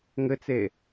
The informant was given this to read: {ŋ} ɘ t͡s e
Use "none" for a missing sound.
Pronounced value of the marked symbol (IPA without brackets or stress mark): ŋ